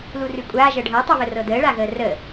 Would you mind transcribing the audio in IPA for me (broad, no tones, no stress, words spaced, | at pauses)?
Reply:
lurʉkʷʼaː ʒɤɖʱɤ tˤʉβərɤdəː ɭaɣəːrə